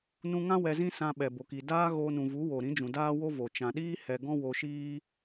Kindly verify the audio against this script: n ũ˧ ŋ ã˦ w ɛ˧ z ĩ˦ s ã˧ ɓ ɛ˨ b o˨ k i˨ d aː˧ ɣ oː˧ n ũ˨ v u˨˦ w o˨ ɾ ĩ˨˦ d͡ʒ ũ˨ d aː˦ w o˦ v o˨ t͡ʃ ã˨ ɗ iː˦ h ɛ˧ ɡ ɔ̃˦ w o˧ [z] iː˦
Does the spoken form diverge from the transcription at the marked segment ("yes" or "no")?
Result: yes